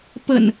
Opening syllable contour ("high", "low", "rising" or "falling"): low